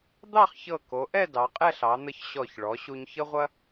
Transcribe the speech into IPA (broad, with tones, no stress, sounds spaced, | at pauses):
d̪ ɑ˥˧ χ ç ɤ˧˩ k o˩˧ ʔ ɛ˥˧ d ɑ˩˧ qʼ ɛ˥˧ ɬ ɑ˩˧ n̪ ə˧ ç ɕ ɔ˧˩ ç ɭ ɔ˩˧ ɕ u˧ ɲ ç ə˥ ʁʷ ɐ˥